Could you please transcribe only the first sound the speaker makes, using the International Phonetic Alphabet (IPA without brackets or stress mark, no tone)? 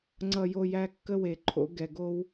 ŋ͡ǀ